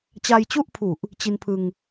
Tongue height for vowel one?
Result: low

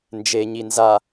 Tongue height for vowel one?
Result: mid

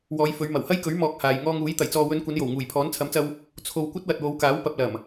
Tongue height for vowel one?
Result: mid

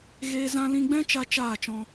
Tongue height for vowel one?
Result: mid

